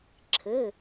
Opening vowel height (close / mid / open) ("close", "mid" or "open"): mid